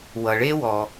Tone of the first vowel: low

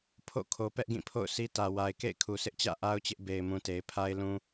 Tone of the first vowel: falling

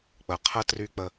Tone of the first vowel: low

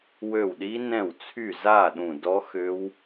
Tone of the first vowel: falling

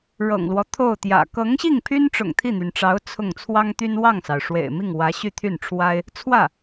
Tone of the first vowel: low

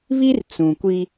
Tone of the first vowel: high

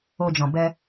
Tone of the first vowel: low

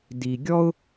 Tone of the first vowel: low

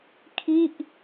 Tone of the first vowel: falling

